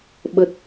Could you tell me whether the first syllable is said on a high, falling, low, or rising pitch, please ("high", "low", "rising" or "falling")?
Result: low